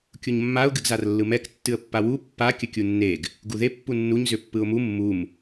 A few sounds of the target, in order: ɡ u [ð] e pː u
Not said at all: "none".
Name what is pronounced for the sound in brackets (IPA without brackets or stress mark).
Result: ð